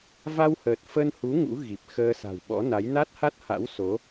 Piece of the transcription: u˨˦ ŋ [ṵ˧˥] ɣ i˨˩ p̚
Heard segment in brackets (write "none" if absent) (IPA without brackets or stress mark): ṵ˧˥